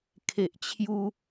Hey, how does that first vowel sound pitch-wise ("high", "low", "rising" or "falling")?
low